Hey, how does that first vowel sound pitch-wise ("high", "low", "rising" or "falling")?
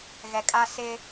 low